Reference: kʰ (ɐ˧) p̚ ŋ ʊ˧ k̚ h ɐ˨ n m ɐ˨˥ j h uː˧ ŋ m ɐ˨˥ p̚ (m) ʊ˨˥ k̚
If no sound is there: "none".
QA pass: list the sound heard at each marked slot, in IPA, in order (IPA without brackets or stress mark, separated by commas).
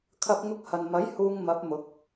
ɐ˧, m